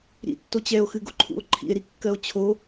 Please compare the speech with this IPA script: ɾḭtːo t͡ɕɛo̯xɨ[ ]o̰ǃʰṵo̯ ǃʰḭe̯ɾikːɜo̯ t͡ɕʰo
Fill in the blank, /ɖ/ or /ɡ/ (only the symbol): ɡ